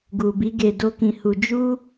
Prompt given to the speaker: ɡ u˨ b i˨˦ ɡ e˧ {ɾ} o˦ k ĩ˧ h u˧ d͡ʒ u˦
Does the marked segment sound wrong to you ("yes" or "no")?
yes